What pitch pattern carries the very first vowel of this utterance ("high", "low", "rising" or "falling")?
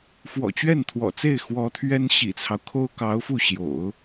low